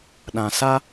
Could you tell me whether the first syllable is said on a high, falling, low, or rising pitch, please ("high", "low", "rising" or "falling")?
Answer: low